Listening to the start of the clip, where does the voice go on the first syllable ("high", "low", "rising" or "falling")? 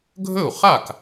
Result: falling